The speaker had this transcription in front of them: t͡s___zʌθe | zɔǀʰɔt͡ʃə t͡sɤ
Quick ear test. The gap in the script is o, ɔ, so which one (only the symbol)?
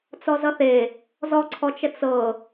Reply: ɔ